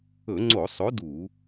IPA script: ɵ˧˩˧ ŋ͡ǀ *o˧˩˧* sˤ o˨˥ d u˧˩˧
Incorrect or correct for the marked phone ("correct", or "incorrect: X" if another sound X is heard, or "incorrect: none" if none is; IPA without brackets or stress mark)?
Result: correct